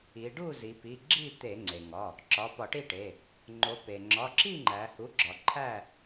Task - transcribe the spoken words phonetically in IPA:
i˩˧ ɖ u˥˨ z i˩˧ p i˩˧˩ ɡ͡ǁ i˥˨ t̪ e˧˩˧ ŋ͡ǀ e˩ ŋ ɒ˩˧˩ | ǁ ɒ˩˧˩ p ɒ˧˩˧ ʈ i˥˨ ʈ e˩˧˩ | ŋ͡ǃ o˩˧ p e˩ ŋ͡ǁ ɒ˩˧˩ ǁ i˥˨ ŋ͡ǃ æ˩˧ h u˩˥ ɡ͡ǁ ɒ˩˧ ǃʰ æ˥˨

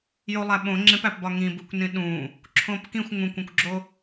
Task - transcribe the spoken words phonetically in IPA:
j o lˠ æ ɓ õ ŋ͡ǁ ẽ p æ p b ɒ ŋ ĩ b u kʷ n ĩ ɗ ũ | ǁʰ õ p k ĩ xʷ ŋ ũ kʷ õ kʷ ɡ͡ǁ o

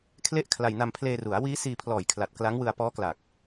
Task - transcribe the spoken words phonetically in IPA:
kʰ l e˥˩ ʔ kʰ l a˧ j n a˧ m pʰ l eː˧ r u˩˦ a̯ w iː˦˥ s iː˧ pʰ l ɔː˨˩ j kʰ l a˨˩ t̚ k l a˦˥ ŋ w ɯ˧ a̯ p ɔː˦˥ k l a˨˩ k̚

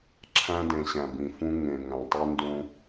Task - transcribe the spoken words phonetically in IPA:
ǁʰ æ̃˦ d ẽ˨ ɕ æ̃˨ b ĩ˨ f ũ˦ ŋ ẽ˨ ŋ æ̃˨ tˤ i˦ n d ũ˦

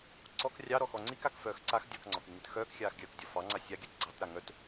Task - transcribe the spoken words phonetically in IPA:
ǀ ɔ k rʲ ɑ ɾ ɔ x ɔ ŋ͡ǀ i k a k f œː x ǀ a x dʲ ɔ k ŋ͡ǀ ɔ k y ŋ ɨ t x œː k xʲ aː x ɡʲ œː k dʲ ɔ f ɑ ŋ͡ǀ a sʲ a ɡʲ œ t ɡ͡ǀ ɑ t ɾ a ŋ œ t

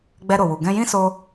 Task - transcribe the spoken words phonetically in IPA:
ɡ͡b ɛ˧ ɾ o˨ w u˨ ɡ ɛ̃˧ j ĩ˦ s o˧

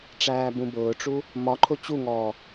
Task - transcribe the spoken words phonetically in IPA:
ʈ͡ʂ æː b ũ b ʊː ʈ͡ʂ u | m ɒ ǃʰ ʊ t͡ɕ u ŋ ɔː

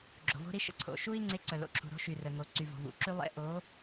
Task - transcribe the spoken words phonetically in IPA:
ɡ͡ǁ o̤˩ v o̤˦ ɾ i˦ ʃ ə̰˩ ǀʰ o̰˩ ʃ u˦ i̯ ŋ͡ǀ e˨˥ ǀ œ˩ l o̰˩ ǁʰ ṳ˩ ɾ o̤˨˥ ʃ y˩ r ə˩ ŋ o˩ ǀ y˩ v o̤˩ v ṵ˩ ǁ y˦ lˠ ḛ˦ ʔ o˨˥

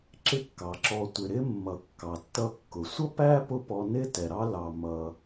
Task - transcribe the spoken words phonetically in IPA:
ǁ ɪ˦ kː ɑ˩ ǁ ɔ˨ tʷ ɪ˩ ɾ ɪ˥ mː ʌ˨ kː ɑ˩ tː ʌ˦ kː ʊ˩ sʷ ʌ˥ p æ˥ p ʊ˥ p ɔ˦ n ɪ˥ t ɛ˨ ɾ ɑ˥ l ɑ˨ m ʌ˨

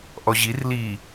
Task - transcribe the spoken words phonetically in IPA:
ʔ ɔ ʑ i r l i

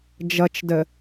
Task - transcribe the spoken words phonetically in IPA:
d͡ʒ ʌ t͡ʃ d ə

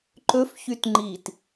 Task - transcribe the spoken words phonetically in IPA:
ǃ ɵ f ç y t ŋ͡ǃ i t

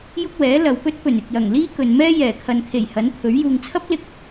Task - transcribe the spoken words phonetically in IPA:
j ʊ˥ k̚ w ɛː˨˥ l ɐ˨˧ w p ɵ˥ t̚ p ɵ˨˩ n ɪ˨ k̚ j ɐ˨˩ ŋ l iː˥ k ɵ˨ n m ɛː˥ j ɛː˨˩ kʰ ɐ˨ n kʰ e˨˩ j h ɐ˨˥ n pʰ ɵ˨˥ ɥ j uː˨ ŋ t͡sʰ ɐ˥ p̚ l ɪ˧ k̚

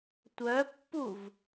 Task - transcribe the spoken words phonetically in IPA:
tʷ œ pː u v

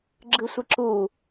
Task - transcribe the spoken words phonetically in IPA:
ɡ͡ǁ ɯ sʷ i ǁ uː

